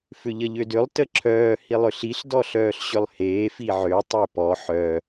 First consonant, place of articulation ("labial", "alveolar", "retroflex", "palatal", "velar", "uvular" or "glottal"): labial